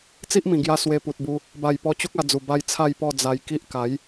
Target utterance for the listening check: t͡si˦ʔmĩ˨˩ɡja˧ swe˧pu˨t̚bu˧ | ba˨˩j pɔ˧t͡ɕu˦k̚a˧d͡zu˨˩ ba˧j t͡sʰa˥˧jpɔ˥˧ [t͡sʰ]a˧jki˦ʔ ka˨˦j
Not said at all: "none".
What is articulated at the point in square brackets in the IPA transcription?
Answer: d͡z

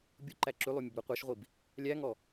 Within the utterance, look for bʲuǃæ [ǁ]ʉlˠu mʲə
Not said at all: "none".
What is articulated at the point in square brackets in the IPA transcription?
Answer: ǁ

